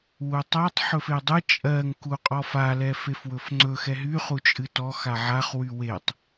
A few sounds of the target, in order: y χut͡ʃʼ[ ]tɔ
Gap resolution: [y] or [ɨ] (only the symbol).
ɨ